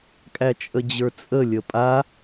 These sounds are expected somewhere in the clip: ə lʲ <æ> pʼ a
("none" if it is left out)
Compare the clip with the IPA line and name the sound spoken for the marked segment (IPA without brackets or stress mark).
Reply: ə